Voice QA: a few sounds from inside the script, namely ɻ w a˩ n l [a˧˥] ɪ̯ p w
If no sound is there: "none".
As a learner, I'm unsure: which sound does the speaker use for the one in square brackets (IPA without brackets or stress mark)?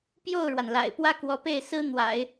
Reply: a̰˨˩